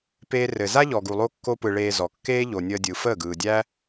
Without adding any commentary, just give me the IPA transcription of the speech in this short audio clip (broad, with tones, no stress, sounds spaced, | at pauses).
p eː˦ r ɘ˧ z a˦ ʎ ɔ˨ ɡ u˨ lˠ o˦ kː o˦ p ɯ˧ ɭ eː˧ z ɔ˨ kː eː˦ ʎ o˨ nʲ əː˧ dʲ ɯ˨ f əː˦˨ ɡ ɯː˨ dʲ æ˦